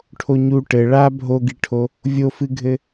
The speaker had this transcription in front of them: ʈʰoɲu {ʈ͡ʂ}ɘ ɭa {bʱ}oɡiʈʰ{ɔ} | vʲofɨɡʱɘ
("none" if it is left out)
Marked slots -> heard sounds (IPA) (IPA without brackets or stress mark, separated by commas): ʈ, bʱ, o